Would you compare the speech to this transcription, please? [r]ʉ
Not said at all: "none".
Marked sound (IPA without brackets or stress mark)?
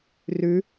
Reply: r